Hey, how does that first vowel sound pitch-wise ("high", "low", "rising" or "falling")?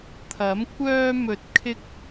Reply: rising